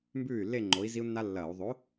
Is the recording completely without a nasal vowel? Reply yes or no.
yes